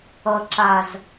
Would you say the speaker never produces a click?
no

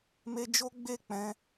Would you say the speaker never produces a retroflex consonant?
yes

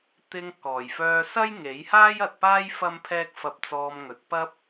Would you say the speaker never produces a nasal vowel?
yes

